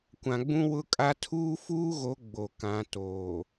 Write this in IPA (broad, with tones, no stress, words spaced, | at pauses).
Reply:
kʷã˨ɡ͡bũ˦wʊ˦kʼa˦ tʰuː˦fuː˦ɣo˨˦ ɡ͡bo˨kã˨˦toː˨